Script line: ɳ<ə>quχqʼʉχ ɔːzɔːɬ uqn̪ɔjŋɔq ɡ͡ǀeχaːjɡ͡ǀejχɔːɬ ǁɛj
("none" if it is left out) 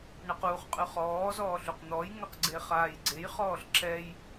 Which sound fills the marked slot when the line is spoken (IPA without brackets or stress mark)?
ə